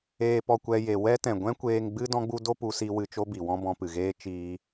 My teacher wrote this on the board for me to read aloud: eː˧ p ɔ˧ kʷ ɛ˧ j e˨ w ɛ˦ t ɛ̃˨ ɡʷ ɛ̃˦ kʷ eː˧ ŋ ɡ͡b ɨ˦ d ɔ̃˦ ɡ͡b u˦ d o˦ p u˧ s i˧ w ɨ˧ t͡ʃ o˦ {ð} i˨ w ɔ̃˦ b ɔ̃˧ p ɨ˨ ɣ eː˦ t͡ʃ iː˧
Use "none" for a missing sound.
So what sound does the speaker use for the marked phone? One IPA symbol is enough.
b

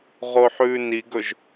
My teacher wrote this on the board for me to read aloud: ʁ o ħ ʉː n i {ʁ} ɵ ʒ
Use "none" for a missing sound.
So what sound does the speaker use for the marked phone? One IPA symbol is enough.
ɡ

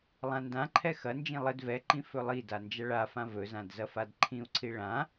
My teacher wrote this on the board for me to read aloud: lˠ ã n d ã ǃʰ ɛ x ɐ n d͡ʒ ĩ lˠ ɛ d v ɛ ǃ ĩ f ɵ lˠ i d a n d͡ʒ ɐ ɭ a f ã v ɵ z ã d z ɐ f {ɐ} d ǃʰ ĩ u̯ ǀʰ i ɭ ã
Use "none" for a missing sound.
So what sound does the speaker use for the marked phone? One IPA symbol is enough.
a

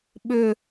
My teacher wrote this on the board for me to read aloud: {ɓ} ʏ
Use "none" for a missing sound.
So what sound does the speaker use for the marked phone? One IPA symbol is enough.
ɓ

